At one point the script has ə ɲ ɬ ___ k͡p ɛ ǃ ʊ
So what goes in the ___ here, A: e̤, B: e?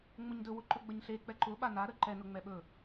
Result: B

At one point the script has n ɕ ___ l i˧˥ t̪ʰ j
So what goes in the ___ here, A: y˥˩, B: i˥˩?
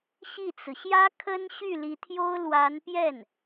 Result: A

